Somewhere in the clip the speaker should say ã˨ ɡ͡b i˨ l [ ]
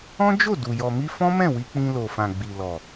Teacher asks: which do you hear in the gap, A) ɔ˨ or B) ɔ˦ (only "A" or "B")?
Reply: A